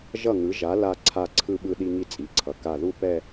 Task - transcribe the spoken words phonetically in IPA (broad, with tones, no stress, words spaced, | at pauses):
ʒʌ˧˩ŋɯ˩˧ʒa˩˧ la˧ ǀʰa˧˩ǀʰɯ˧ɓɯ˧ ɗi˧ŋi˧ t͡sʼi˩˧ǀʰʌ˩˧ ka˧˩ðu˥˧ pɛ˥˧